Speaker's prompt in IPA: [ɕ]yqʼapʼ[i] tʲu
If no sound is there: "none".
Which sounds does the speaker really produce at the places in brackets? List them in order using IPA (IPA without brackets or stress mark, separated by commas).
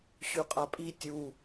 ɕ, i